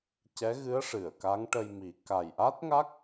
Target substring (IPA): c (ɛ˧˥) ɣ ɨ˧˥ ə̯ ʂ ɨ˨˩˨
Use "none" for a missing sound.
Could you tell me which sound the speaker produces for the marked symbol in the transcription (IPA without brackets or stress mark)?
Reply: ɛ˧˥